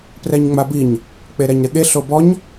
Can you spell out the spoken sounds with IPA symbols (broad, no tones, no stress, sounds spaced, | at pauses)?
p r ɛ ɲ ŋ͡m a b i ɲ | k͡p e ɾ ɛ ɲ ɾ ɪ ɠ e ɬ o b ɔ ɲ